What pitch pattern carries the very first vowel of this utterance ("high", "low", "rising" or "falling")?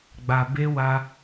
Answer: low